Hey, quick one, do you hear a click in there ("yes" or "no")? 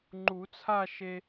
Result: yes